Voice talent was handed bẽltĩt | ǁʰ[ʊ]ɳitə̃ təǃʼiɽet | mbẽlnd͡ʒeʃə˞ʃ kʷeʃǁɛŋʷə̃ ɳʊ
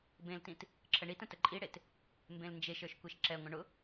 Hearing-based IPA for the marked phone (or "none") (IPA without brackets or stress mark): ə